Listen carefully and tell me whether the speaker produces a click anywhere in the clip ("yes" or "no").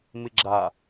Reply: yes